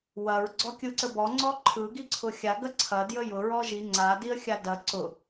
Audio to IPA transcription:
wɐɹ ɡ͡ǀɔkʲɯǀəbɔ ŋ͡ǀɔǃʰɯ ɡiǀʰʊxʲa ɡɐǀʰɐ djəjʊ ɹɔʒi ŋ͡ǀa diə̯xʲadɐ ǀʊ

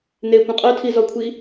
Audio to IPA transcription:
n̪ekʷə̃ qʼœtʰizɔkʷʰi

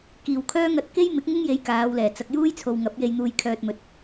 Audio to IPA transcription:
kiː˨˩wkʰœː˥ ŋɐ˧t̚ ke˥jmɪ˨˥k̚ŋɪ˥ŋje˨˧j kaː˨˧wlɛː˨˩ t͡sɐ˨k̚juː˥jt͡sʰo˨w ŋɐ˨˥p̚je˧jn̪uː˧j kʰœː˧t̚mɵ˨˥t̚

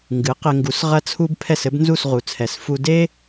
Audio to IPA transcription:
ŋɡɨ˩˥qɘ˧ŋɡu˩˥s ʁɐ˧t͡sʰu˧b pʰɛ˥˩sɘ˥bnzu˥˩s ʁu˩t͡sʰɛ˩s fu˧ de˥

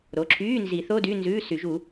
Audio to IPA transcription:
ɾo˩˧˩ǁʰyː˧˥˧nzi˨˩˦θo˧˥˧ dy˧˥˧nzʉː˧˥˧sy˨˩˦ʒu˨˩˦

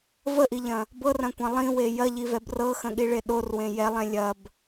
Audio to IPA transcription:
vəʔiʎɐ̃ | bɤrɐ̃kʷɐ̃ lˠĩwe jɐʎivɛb rɤxə̃ɠiɭe ɗorwẽ jɛlˠɛ̃ lʲɐb

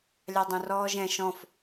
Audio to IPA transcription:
lʲɑdˤõrɔːʒɛ̃ ʃɔ̃f

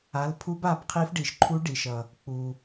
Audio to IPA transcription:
a˩˧˩lpʰu˧˥ba˩˧˩bqʰi˧˥f ɖi˩ʃǃʰu˧˥ɖi˩ʃʌ˩ | k͡pu˩

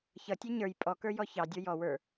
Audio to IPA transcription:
çʌtʲɛ ɲə˞j pʼɔkə˞ jɔçɑ dʲə˞jɔ wə˞

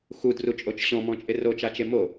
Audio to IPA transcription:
xudrut͡ʃʼot͡ʃ ɕɔ̃mɔ̃t͡ʃʼɪ rot͡ʃat͡ʃe mo

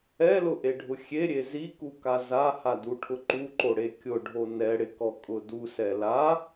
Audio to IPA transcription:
ɛlʊʔeɖʱʊ xʲeɾʲe zikuka zahaduʈʰʊ ǃuǃoɽe kʲʊɖʱo nɛɽɪkɔkʼʊ dusɛ la

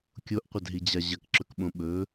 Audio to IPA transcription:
kʲoʔqʷɐdɦid͡ʑa ʑɐkǁɵkɓõ ɓɵ

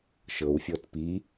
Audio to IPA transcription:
ʃɤwfʲɔt pi

